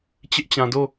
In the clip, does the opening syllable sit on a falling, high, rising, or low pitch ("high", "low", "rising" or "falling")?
high